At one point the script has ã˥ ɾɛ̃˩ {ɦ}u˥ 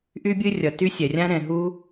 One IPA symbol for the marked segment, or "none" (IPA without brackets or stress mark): ɦ